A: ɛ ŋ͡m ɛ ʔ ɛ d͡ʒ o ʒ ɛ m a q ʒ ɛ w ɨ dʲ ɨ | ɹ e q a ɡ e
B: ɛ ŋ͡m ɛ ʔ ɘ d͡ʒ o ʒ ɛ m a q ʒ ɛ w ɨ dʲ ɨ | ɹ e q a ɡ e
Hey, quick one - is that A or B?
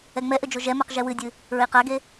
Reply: B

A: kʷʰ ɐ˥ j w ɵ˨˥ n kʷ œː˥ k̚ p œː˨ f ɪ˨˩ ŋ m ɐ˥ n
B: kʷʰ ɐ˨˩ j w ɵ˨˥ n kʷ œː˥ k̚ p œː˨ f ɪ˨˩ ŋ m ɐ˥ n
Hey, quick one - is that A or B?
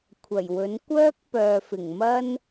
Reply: B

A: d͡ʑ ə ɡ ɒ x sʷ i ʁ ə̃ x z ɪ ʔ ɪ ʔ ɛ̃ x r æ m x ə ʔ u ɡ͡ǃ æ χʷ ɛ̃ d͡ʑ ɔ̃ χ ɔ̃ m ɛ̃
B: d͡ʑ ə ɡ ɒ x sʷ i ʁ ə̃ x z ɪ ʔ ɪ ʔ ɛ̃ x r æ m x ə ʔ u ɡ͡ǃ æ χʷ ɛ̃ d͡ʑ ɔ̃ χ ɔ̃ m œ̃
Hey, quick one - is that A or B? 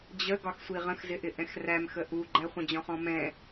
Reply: A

